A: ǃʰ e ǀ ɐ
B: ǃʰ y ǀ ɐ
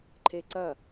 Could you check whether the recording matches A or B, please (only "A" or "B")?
A